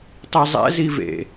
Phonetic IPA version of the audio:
tˤ i zˤ ɛ̰ z i v ḛ

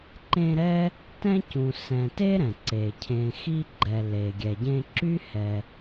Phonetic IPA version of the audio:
ǃ ẽ˦ ɾ ɛ˥ | t ɛ̃˥ c ũ˨ s ɛ̃˨ t e˥ ɾ ɛ̃˩ ǀ e˩ cʰ ẽ˨ x i˦ ɡ͡ǃ ɛ˨ l e˩ ɡʲ ɛ˩ ɟ ẽ˦ ǁ y˥ h ɛ˨

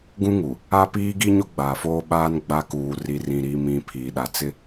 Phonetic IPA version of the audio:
ɡ ũ˦ ŋ u˨ | a˦ p iː˦ ɡ i˦ ɲ o˦ ɡ͡b aː˨ f oː˦ ɓ aː˦ n ɡ͡b a˦ k uː˨ r i˨ r ĩ˨ ɾ iː˨ m ĩ˨ pʰ iː˨ ɗ a˨ t͡s ɪ˦

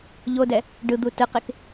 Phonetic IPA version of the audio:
ʎ o d ɛ | ɖ ɯ d̪ u t ɯ q e k

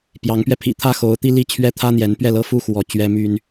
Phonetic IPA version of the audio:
p j ɑ˨˦ ŋ p ɥ ɛ˧ pʰ ḭ˨˩ t̪ʰ ä˦ x o˨˦ ʊ̯ t̪ i˦ l i˥˨ t͡ɕʰ ɥ ɛ˦ t̪ʰ ä˦ n̪ j ɛ˨˦ n p ɥ ɛ˥˨ l ɤ˥˨ f u˦ x w ɔ˨˦ t͡ɕ ɥ ɛ˦ m y˦ n

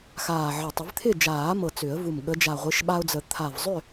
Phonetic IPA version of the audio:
x aː˨˩ ʕ ə˨˩ tˤ ɪ˨˩˦ v t̪ʰ ɪ˥˨ d͡ʒ aː˨˩˦ m ɤ˨˩ t͡s ʏ˨˩˦ ə̯ v u˨˩ m ɠ ə˨˦ d͡ʒ a˨˩ ʁʷ ɪː˨˦ ʃ ɓ a˦ ʊ̯ d͡z ə˨˩˦ t̪ʰ a˨˩ v zˤ ʏ˥˨

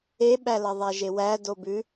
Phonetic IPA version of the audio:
e ɓ æ l ɐ ðˤ æ ʒ e w æ d o b ʉ

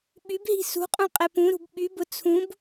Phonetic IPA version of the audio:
ɓ y b ɦ i̤ s ṳ qʼ ũ qʼ ɛ p ũ ɾ ṳ b ɓ y b ʊ t͡sʰ ũ b

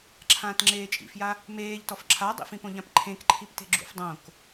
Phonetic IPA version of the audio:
ǁʰ ãː t ŋ͡ǁ eː t͡ʃʼ ḭ f j a | m eː ʎ t ɔ f ǁʰ a dˤ ḭ f ĩ p õ ʎ ã p ǃʰ ẽ k ǃʰ i p t e̤ ɡ͡ǁ ṵ f dˤ õ k

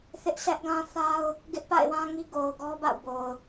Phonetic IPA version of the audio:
θ ɪ˦ ʔ sʰ ɛ˦ ʔ ɡ ã˦ θ a˦ ʊ̯ | ɡ ɪ˦ ʔ p a̰˦˨ ɪ̯ w ã˦ ŋ i˦ ɡ o˨ ʊ̯ ɡ ɔ˦ b a̰˦˨ ʊ̯ b o˨ ʊ̯

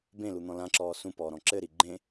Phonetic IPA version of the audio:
b ẽ l u n̪ ɔ̃ l ã ǁ ɔː s ũ p ɔː ɾ ɔ̃ ǁ ɘ ɾ i ɡ͡ǃ ẽ

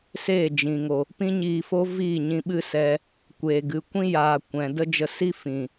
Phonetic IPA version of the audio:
s eː˦˨ d͡ʒ ĩ˨ ŋ o˨ | p ĩ˦ ɲ iː˧ f o˦ v iː˦˨ ɲ ĩ˧ ɓ ɨ˦ s ɛ˧ | kʷ eː˨ ɡ ɨ˨ kʷ ĩ˦ j aː˨ kʷ ɛ̃˨ d ə˦ d͡ʒ ə˧ s i˦ f ĩ˨

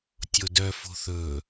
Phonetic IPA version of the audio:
tʲ o d œ f o̤ θ ɵ

